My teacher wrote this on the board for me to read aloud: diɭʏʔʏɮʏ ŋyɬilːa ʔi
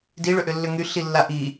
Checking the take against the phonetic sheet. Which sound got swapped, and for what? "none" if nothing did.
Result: ɮ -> lː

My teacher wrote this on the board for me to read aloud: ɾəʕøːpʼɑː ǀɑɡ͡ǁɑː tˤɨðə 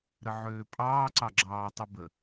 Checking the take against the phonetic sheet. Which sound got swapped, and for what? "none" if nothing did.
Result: ð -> b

